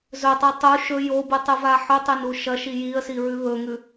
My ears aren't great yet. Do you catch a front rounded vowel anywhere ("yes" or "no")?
no